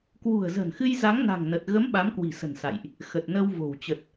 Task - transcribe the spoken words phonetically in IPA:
k w ṳ˨˩ ə̯ z ə̤˨˩ n x ɨ˧ j z a˨˦ ŋ n a̤˨˩ ŋ n ə˨˩ t̚ ɣ ə˨˦ m ɓ a˨˦ m k w i̤˨˩ s ə̤˨˩ n s a̰˧˨ j ʔ | x ə˨˩ t̚ n ə˧ w v o̤˨˩ w t͡ɕ ə˨˩ t̚

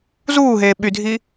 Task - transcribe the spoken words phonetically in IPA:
z uː ɦ eː ɓ y dʱ iː

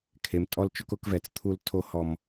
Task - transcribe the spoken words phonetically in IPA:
kʰ e˨ m tʼ ɔ˦ l t͡ʃ ʊ˦ k ʊ˦ k v ɛ˨ t͡s t̪ʰ u˦ l tʰ o˦ h ɔ˦ m

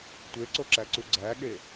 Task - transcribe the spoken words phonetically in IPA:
tʷ e ǀ o ǁ æ ǀ u ɡ͡ǀ æ ɠ e

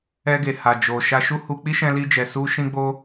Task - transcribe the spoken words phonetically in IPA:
ɛ˧ ɡ e˨ h a˨ d͡ʒ o˨ ʃ a˧ ʃ u˦ h u˧ k͡p i˦ ʃ ɛ̃˧ l i˧ d͡ʒ ɛ˨ s u˧ ʃ ĩ˧ ɡ͡b o˧

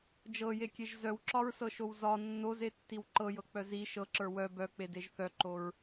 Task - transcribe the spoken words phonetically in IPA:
d͡ʒ ɤ j e kʲ e ʒ z œ w ǁ ɒ ɹ s ɤ ʃ o w z ɒ nː o z e tː i w ǃ ɤ j ɤ k͡p œ z i ʃ ɤ ǁ ə˞ w œ b œ k͡p e d e ʒ θ œ ǃ o ɹ

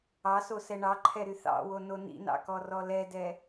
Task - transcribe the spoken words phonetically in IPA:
ɑ s o s ɛ ɳ ɑ ǃʰ ɛ ɾ y θ ɑ̰ w o n o n ḭ n ɑ̰ k ɔ r ɔ l ɛ d ɛ

